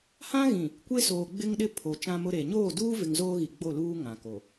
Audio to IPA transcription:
h ã˦ ɣ ĩ˨ | kʷ e˦ s oː˨ ɡ͡b ɪ˦ ŋ ɗ ɪ˦ pʰ o˨ t͡ʃ ã˦ m ʊ˦ ɾ e˨ ɲ oː˦˨ d uː˦ v ɪ˨ ŋ z oː˦ ɣ i˨ ɡ͡b o˦˨ l uː˦ ŋ ã˨ k o˨

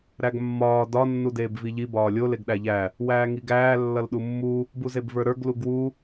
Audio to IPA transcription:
ɾ æ ɡ mː ɒː d ɒ nː u d eː b v i ʎ i b ɒː lʲ o l e ɡ ɗ æ ʎ æ | w æː ŋ i ɡ æː lː ʌ l ɗ u mː u | b u z e b v ə˞ ɾ ə˞ ɡ l u ɡ w u

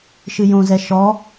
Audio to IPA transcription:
ʃ ɨ j õ z ɛ ʃ ɔ

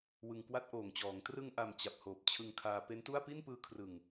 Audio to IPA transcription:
w ɯ˨˩ ŋ k w a˦˥ t̚ ʔ oː˨˩ ŋ t͡ɕ ɔː˩˦ ŋ t r ɯ˧ ŋ ʔ a˨˩ m t͡ɕ a˨˩ p̚ h oː˨˩ p̚ t͡ɕʰ ɯ˧ ŋ kʰ aː˧ p e˦˥ n t u˥˩ a̯ p i˥˩ n p ɯː˧ kʰ r ɯ˨˩ ŋ

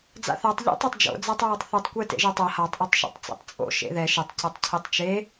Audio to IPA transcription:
d͡z a̰ θ a tˤ ʎ ḭ tˤ ɛ tˤ d͡ʒ o̰ d͡z a tˤ ɹ ʌ tˤ θ u tˤ kʷ ɛ t ḛ ʒ ɯ tˤ ʌ h a tˤ ʔ ɯ tˤ ʃ o̰ tˤ t͡s ḭ tˤ t͡sʼ o̰ ʃ ḛ ð ɛ ʃ e tˤ c a tˤ cʰ ɛ tˤ t͡ʃ e

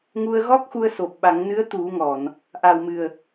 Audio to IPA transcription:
ŋ u˧ ə̯ ɣ ɔ˦˥ k̚ x u˧ ə̯ s o˨˩ p̚ ɓ a˨˩˦ ŋ n ɨ˧˥ ə̯ t̪ u˨˩˦ ŋ ɔ˨˩˨ n | ʔ a˨˩ w m ɨ˨˩ ə̯

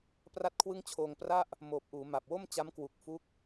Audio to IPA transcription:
p r a˥˩ t̚ kʰ w ɯ˥˩ ŋ t͡ɕʰ oː˧ ŋ p r a˥˩ ʔ | m oː˨˩ p̚ ʔ uː˩˦ m a˨˩ p̚ w o˥˩ m t͡ɕ a˦˥ m k w u˨˩ k̚ f u˦˥ k̚

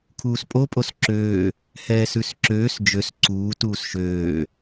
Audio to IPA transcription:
kʰ uː s pʼ o pʼ o s ǁ øː | h ɛː s ʉ s ǁ øː s d͡ʒ ø s ǀ uː t uː s ʃ øː

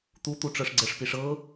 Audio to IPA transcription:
t̪ u t̪ u ʈ͡ʂ ɤ ʂ ɡ͡ǀ ə ʂ p i ʂ ɤ

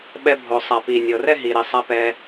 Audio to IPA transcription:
ɓ ɛ˧ bʱ o˩ sˤ a˩ p i˩ nʲ ɤ˩ r ɛ˥ ɦ i˩ ɾ i˩ sˤ a˧ p ɛ˧

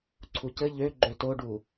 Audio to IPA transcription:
ǀʰ u c ɘ ʎ ø ɡ͡ǃ ø t o ɖ u

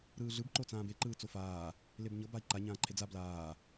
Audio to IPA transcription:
ɾ ɯː ɮ ɯ b ǃ o t͡s ãː b e ǃ ɯː t͡s o f aː | l e b ɲ ɤ b a i̯ ǃ a ɲ ãː ǃʰ e d͡z a b l aː

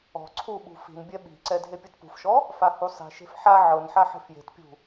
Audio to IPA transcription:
ɔ̤ ǀʰ u ɓ ṳ f i̤ n bʲ ɛ ɓ i̤ ǀ ɛ dʱ e pʲ u t p ṳ f ʃ ɔ | f a h u sˤ i̤ ʃ e̤ f ħ a ʕ ɤ n ħ a ħ e̤ f j e̤ t pʲ ṳ

